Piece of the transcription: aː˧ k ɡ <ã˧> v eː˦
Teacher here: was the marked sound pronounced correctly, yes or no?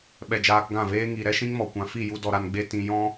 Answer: no